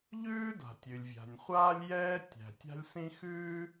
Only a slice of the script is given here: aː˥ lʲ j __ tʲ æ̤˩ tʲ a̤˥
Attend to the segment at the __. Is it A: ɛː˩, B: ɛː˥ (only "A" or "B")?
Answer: B